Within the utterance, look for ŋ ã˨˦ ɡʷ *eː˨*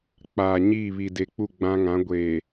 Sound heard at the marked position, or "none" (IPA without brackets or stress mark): eː˨